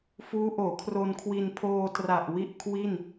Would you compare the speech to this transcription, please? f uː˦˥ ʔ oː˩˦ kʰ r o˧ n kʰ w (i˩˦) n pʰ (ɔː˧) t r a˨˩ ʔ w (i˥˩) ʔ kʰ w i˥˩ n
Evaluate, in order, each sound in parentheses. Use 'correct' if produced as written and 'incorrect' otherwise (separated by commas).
incorrect, incorrect, correct